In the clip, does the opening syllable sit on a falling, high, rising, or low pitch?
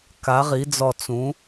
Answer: rising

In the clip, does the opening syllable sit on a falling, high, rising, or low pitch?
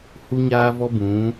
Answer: high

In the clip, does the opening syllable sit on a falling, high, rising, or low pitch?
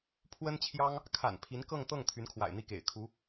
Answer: high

